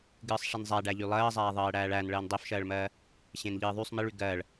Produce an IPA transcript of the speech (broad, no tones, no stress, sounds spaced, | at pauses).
ɡ ɨː sˤ ʂ i n zˤ æ ɖ æ ʎ y lˠ ɜː zˤ æː ðˤ ɜː ɽ æː ɭ æ n ɭ ɜː n dˤ e f ʃ ɜː ɭ m ɜː | ɕ ẽ n ʎ ɨː ðˤ y sˤ m i ɭ y ɡ ɜː ɭ